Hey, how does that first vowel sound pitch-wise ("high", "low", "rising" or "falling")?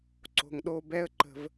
low